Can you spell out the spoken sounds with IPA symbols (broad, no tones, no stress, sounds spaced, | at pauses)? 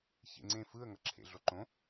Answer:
ç ḛ ŋ͡ǀ ẽ f ɯ ə̯ ŋ ʌ ǁʰ ḛ ɮ o ǃ õ